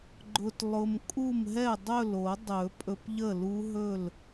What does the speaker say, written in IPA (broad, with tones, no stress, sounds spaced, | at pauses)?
ɡ͡ǃ ʊ˧ t lˠ ʊ˧ m kʼ u˥˩ m ɦ ɛ˥˩ dˤ ɵ˥˩ l o˨˩˦ dˤ ɵ˨˩˦ pʼ ɵ˧ p ʎ ə˥˩ l u˦˥ ɦ ɵ˥˩ l